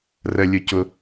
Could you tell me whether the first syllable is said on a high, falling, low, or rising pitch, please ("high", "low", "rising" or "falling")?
high